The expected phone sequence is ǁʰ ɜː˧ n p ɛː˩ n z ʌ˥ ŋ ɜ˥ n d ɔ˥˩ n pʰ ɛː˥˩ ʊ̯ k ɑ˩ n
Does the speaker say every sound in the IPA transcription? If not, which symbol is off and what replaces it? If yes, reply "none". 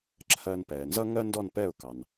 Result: pʰ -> p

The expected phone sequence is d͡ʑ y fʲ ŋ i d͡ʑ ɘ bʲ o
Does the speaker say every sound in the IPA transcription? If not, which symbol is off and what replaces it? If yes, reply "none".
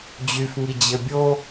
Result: fʲ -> f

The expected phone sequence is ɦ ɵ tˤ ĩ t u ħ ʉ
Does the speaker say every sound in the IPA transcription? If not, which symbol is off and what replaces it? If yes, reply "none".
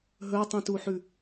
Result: none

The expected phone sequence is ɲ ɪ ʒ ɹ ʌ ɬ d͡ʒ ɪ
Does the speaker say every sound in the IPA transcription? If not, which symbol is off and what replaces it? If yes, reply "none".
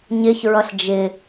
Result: ʒ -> ç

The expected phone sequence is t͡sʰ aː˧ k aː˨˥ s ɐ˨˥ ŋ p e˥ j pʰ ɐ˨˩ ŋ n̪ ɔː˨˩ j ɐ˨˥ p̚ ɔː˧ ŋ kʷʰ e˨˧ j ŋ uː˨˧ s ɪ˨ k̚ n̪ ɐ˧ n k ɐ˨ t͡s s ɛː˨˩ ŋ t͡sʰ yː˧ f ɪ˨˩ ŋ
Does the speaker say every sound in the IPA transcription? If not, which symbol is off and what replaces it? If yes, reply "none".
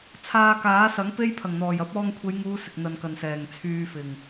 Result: t͡s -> n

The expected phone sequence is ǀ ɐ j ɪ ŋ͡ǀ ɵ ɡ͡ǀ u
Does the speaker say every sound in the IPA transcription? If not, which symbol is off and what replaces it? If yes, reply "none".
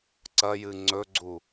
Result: ɪ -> ɨ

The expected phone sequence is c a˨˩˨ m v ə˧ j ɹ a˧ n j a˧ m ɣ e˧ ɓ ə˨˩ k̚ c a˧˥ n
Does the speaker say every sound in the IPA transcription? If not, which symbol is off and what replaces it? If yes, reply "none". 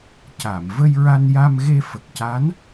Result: ɓ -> f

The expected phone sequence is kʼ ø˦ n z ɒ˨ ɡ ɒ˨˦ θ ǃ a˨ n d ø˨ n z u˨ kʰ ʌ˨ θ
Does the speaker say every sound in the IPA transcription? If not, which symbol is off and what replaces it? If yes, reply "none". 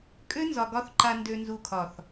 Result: ʌ˨ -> ɒ˨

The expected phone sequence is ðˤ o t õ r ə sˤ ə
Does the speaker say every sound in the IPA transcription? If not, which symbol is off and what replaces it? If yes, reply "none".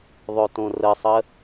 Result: none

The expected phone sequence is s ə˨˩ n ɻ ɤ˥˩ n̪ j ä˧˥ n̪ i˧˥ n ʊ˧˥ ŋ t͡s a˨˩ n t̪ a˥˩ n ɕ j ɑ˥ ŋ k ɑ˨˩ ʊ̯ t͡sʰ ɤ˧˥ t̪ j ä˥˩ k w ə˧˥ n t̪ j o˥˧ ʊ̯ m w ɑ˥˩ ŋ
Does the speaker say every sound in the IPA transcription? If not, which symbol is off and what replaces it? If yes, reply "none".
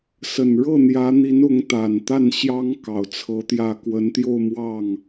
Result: t͡s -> t̪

